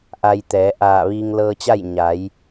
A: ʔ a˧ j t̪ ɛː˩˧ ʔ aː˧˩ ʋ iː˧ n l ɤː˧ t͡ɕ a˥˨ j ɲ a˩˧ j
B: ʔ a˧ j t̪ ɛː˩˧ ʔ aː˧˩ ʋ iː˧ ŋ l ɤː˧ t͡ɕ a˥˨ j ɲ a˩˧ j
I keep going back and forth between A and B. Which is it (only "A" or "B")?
B